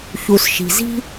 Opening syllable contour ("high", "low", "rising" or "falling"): low